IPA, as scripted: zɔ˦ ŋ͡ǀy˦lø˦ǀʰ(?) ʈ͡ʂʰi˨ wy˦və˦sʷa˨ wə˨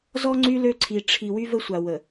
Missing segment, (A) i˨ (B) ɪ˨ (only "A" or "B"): A